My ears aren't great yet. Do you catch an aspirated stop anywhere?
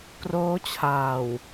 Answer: yes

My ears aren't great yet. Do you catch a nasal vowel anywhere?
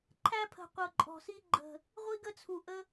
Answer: no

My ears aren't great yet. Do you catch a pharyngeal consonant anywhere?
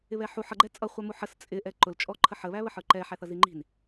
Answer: yes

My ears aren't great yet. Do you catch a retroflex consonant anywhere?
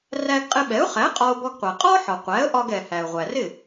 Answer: no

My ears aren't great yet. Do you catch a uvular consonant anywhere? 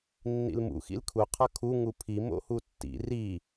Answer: yes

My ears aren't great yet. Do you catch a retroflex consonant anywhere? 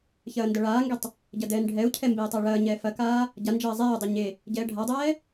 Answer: yes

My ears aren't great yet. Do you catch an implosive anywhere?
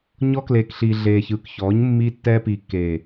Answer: no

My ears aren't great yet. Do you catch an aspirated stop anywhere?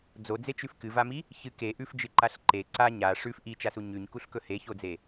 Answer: no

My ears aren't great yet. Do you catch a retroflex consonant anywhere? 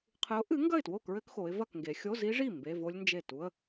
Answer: yes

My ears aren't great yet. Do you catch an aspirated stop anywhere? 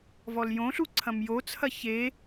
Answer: yes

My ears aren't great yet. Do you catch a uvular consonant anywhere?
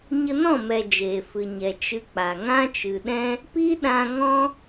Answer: no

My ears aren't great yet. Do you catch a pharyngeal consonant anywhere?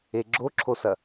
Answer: no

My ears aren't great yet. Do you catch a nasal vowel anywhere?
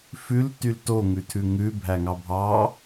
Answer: no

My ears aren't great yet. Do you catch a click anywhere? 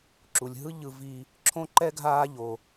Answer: yes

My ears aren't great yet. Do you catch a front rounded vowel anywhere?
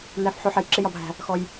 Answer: no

